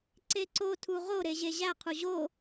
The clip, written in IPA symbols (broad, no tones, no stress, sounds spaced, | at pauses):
ǀ e ǀ o tʰ u ʁ o ɾ e ʑ e ʑ æ qʰ u ʑ o